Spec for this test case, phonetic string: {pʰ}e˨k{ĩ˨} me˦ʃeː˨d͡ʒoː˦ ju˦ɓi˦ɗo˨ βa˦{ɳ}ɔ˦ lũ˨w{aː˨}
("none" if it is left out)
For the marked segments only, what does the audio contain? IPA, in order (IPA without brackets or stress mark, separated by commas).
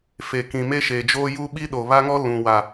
f, ĩ˨, ŋ, a˨